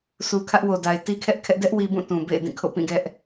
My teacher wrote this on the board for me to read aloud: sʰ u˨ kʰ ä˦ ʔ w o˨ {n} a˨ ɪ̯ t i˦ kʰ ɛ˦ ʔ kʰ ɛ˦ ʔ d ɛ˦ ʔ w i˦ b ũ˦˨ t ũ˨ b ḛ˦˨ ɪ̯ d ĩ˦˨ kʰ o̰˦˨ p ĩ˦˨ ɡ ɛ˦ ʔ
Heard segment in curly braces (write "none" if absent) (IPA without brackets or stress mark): d